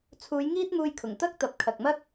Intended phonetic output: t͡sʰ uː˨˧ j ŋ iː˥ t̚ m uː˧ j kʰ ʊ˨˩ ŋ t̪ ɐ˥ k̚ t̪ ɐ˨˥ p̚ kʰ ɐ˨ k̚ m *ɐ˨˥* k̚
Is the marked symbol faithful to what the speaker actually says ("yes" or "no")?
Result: no